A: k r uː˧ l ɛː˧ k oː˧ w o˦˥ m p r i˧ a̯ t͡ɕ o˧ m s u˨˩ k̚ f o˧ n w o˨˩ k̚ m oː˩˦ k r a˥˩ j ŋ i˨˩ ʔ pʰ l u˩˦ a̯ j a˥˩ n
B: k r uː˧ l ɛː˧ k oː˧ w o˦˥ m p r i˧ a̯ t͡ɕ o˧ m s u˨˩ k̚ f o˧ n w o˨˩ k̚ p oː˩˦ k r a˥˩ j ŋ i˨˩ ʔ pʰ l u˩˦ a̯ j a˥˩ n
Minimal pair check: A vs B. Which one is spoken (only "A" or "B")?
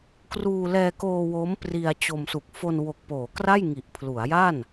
B